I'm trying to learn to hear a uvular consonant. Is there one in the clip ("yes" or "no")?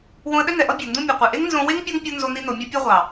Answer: yes